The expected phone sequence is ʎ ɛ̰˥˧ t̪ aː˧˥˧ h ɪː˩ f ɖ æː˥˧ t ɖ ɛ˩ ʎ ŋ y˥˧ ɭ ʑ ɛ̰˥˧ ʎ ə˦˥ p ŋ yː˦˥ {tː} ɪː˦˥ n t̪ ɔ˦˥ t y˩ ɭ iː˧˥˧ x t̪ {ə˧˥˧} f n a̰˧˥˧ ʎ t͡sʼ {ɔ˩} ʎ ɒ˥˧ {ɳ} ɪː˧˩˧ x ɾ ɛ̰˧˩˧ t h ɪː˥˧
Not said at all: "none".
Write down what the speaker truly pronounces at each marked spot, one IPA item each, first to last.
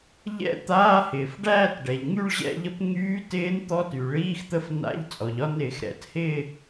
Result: t, ə˦˥, ɔ˩, n

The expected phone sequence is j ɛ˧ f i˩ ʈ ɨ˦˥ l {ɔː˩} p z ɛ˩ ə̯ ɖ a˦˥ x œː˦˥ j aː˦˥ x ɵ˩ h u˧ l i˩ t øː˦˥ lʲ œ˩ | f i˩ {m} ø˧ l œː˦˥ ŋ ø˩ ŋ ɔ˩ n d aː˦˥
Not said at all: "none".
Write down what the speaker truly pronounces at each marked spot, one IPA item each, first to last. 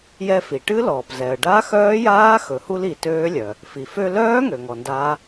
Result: ɔː˩, f

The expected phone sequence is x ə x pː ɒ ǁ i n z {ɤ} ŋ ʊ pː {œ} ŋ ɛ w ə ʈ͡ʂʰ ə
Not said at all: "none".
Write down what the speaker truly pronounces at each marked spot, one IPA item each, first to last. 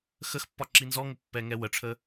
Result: ɔ, ɛ

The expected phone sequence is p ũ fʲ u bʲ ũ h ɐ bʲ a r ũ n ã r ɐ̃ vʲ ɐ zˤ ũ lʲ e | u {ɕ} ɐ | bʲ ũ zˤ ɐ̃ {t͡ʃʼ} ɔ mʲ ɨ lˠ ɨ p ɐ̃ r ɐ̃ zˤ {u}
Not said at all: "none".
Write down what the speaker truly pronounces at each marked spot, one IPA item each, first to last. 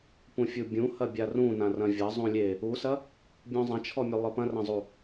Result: s, t͡ʃʰ, u

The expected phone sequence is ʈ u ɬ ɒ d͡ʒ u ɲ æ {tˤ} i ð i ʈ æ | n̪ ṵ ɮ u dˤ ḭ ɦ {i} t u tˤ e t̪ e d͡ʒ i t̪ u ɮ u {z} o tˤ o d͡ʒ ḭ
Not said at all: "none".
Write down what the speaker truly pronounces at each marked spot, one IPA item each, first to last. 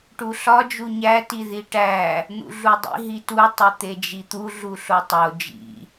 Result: t, i, ɬ

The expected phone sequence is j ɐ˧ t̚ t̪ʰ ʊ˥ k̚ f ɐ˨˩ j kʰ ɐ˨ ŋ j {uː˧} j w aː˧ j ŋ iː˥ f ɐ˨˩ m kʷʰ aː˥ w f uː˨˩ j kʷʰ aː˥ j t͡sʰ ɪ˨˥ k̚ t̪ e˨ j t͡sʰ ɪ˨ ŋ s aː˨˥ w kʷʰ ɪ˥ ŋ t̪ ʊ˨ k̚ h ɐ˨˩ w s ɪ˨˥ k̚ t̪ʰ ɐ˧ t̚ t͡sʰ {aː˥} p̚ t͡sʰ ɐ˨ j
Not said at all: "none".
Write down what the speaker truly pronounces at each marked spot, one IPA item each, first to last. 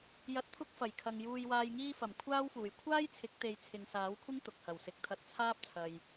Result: uː˧, aː˥

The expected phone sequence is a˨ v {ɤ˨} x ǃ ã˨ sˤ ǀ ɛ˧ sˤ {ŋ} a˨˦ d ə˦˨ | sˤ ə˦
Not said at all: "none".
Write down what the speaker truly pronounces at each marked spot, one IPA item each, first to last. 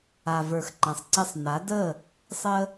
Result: ə˞˨, n

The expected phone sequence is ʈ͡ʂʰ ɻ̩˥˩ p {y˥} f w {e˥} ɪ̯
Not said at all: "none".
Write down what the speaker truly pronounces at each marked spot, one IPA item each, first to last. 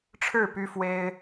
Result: y˥, e˥

